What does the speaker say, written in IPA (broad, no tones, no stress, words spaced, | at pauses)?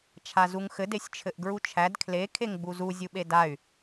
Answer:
t͡ʃʰazuŋxɘd esʲt͡ʃʰɘʔɡɹut͡ʃʰæd kʰle kʰeŋɡ͡buzu zʲuɓeday̯